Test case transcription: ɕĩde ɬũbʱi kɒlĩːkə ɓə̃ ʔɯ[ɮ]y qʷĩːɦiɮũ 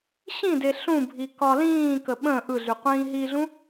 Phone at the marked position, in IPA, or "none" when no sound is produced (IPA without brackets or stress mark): ɮ